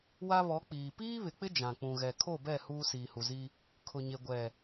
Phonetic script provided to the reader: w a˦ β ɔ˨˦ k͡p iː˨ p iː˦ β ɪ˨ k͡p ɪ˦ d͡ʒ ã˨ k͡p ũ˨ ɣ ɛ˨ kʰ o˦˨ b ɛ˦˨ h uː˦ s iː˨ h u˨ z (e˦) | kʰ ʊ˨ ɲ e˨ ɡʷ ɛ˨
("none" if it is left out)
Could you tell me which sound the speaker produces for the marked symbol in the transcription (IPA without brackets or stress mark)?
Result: i˦